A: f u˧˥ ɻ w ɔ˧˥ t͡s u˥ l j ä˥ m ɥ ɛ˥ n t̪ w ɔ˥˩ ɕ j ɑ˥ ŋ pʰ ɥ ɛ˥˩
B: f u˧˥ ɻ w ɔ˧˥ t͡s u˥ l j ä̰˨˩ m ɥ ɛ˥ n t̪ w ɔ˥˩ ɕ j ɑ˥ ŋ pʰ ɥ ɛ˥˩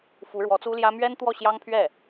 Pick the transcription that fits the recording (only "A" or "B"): A